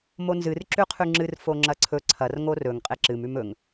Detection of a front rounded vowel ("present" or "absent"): absent